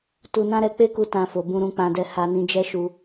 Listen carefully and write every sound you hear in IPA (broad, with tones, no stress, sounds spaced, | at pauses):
t u˧ n ã˦ ɾ ɛ˧ k͡p e˦ k u˧ t ã˧ f o˨ b ũ˧ ɾ ũ˧ k͡p ã˧ d ɛ˧ h a˧ n ĩ˧ d͡ʒ ɛ˦ ʃ u˧